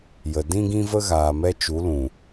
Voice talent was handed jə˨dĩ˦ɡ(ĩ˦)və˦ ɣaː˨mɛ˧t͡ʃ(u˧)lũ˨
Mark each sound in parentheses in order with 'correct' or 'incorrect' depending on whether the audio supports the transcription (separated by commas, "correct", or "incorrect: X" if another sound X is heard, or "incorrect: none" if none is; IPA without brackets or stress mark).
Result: correct, incorrect: u˨˦